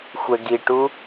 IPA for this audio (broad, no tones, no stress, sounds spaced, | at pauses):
xʷ ɛ ɡ i ʈ u